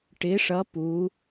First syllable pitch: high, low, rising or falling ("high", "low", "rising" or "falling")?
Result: rising